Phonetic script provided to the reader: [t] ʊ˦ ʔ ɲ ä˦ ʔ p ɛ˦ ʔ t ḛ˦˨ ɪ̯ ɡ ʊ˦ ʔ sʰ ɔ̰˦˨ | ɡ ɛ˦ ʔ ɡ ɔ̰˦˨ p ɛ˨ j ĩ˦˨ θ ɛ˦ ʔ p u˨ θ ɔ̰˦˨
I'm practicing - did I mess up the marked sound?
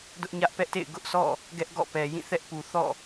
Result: yes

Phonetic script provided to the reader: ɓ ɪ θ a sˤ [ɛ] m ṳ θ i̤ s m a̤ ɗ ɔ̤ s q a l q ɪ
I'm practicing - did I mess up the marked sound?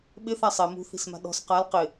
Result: no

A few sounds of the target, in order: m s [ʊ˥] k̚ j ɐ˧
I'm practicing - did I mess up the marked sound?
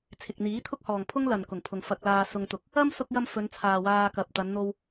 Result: yes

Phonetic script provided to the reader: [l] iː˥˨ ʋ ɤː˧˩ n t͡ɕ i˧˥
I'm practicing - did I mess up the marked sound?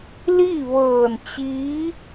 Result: no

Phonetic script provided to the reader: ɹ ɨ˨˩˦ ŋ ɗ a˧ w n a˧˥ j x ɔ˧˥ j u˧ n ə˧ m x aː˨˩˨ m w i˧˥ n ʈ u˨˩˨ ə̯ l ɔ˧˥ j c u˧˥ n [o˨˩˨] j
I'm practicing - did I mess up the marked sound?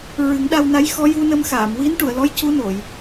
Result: no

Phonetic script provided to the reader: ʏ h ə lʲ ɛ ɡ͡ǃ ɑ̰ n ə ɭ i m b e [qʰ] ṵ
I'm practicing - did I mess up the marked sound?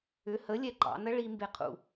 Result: no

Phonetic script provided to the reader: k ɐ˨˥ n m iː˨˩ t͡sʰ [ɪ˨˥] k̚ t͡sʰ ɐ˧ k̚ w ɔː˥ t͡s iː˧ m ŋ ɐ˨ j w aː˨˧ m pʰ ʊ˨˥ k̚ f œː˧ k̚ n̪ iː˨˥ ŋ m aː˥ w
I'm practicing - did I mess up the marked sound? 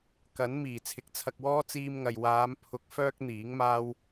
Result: no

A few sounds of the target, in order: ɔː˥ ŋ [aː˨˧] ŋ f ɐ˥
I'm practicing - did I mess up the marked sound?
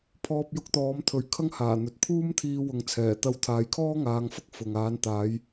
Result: no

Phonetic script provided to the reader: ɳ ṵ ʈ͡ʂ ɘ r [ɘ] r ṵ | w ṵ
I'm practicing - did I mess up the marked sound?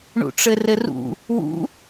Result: no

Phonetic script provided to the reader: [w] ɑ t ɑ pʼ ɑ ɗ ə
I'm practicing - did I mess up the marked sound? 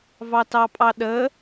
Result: yes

